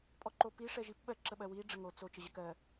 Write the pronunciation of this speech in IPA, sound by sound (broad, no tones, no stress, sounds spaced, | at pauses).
pʼ ɔ ǃ o p i ʂ ɛ ʒ i p ɓ ɜ ǁ ə ɓ ɜ w i ɖ͡ʐ ə ŋ o t͡s o t͡ʃ ə ʑ ə k ɜ